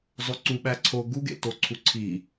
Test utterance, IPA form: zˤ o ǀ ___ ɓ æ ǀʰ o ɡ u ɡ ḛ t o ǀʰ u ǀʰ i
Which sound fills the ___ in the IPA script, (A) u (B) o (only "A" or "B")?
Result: A